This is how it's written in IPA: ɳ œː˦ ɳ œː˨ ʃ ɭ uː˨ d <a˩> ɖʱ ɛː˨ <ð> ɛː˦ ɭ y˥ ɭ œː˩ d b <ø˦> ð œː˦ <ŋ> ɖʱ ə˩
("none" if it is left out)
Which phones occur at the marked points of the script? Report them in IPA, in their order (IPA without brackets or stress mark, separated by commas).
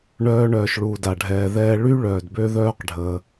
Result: a˩, ð, ø˦, q